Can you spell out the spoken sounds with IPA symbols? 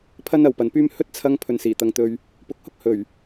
pʰ ɐ˥ n ɐ˨ w p ɐ˨ n p yː˥ m h ɵ˥ t̚ t͡sʰ ɐ˧ ŋ pʰ ɵ˨ n s iː˨˩ t̪ ɐ˨ ŋ t̪ ɵ˨ ɥ | p ʊ˨˥ k̚ h ʊ˥ k̚ h ɵ˨˩ ɥ

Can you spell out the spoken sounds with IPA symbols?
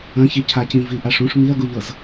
ɐ̃ ç i cʰ a c ĩ v i ʔ a ʂ ũ ʂ m i ɐ̯ ɡ u ʎ ɤ z

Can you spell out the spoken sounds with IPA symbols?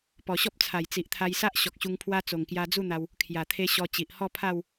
p ɔ˨˩ ɕ ɔ˦ p̚ t͡sʰ a˨˩ j t͡s i˨ ʔ t̪ʰ a˧ j s a˦ ʔ ɕ ɔ˨ k̚ ɕ u˧ ŋ pʰ w a˦ t͡s o˨˩ ŋ k j a˧ d͡z u˥˧ n̪ a˧ w | kʰ j a˨˩ t̪ʰ e˧ ɕ ɔ˧ t͡ɕ i˨ ʔ h ɔ˥˧ pʰ a˥˧ w

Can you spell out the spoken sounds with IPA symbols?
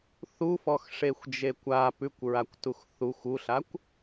θ u f ɔ x ʂ e xʷ d͡ʒ e kʷ a p ʉ kʷ ɹ a kʷ t u x θ u xʷ u ɬ a kʷ

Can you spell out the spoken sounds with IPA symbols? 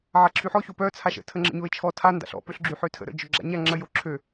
ʕ a ǁʰ y ħ ɔ ç o p œ t͡sʰ a ʃ ə̰ tʰ ə ŋ͡ǁ ə̰ ɲ o ɪ̯ t͡ʃʰ ɔ tʰ a n d a̰ ɬ ɔ̰ p ø ɬ ɡ͡ǁ y ħ ø tʰ ə̰ ɾ ə̰ d͡ʒ œ ɡ͡ǁ a̰ ɲ a ŋ͡ǁ ə j o ǁʰ ø

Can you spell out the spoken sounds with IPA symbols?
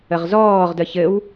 ə ʁ z ɔː ʁ d ə ç ɘ w

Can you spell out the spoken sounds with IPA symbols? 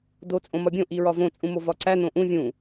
d o t͡sʼ õ m ɒ bʲ õ ʔ i ɹ ɒ v õ t͡sʼ ũ m o v ɒ ǀ æ n õ ʔ ũ vʲ ũ

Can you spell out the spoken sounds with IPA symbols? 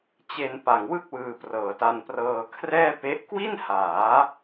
t͡ɕ e˧ n p a˨˩ ŋ w ɯ˥˩ k̚ w ɯː˧ p r ɤː˩˦ t a˧ n p r ɤː˧ kʰ r ɛː˥˩ p e˦˥ ʔ k w i˥˩ n h aː˩˦

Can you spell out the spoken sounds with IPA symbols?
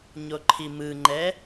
ɲ o ǃʰ i m ɯ ŋ͡ǃ ɛ

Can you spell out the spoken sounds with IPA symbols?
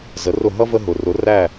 z ə˩˥ r ʊ˥˩ ɦ ʌ˥ v ə˥ ɦ ʊ˩ r ʊ˩˥ r æ˥˩

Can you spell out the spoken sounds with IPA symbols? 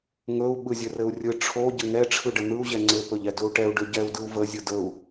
ŋ ɵ u̯ ɓ ɯ zʲ ɘ r ɘ u̯ rʲ ɯ ʈ͡ʂʰ o ɟ ɘ ŋ ɛ ʈ͡ʂʰ ɯ ɖ ə n̪ ɯ u̯ ʑ ɛ ŋ͡ǀ ɘ p ɵ ʎ ɛ d ɵ u̯ ʈ ɛ u̯ ɖ ɵ ɟ ɛ u̯ d ɯ u̯ v ə zʲ ɯ d ə u̯

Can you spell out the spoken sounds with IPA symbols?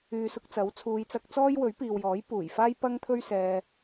yː˨ s ʊ˧ k̚ t͡s ɐ˨˥ w t͡sʰ uː˨˧ j t͡s ɐ˧ k̚ t͡s ɔː˥ j w ɵ˨˥ ɥ p iː˨ w j ɔː˨˥ j p uː˨˩ j f aː˥ j p ɐ˥ ŋ t̪ʰ ɵ˥ ɥ s ɛː˧

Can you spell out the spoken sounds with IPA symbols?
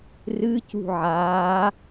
r ɨ c ṳ ʕ aː

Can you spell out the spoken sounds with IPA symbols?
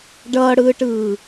ɖ ʌː ɽ ɯː ʈ ɯː

